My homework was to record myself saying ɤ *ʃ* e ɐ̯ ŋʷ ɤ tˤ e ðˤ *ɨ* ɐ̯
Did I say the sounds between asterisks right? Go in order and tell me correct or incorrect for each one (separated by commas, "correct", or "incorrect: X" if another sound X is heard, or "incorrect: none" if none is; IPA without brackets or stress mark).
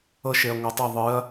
correct, correct